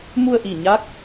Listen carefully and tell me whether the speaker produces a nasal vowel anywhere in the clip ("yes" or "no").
no